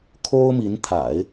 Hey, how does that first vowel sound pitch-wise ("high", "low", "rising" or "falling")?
high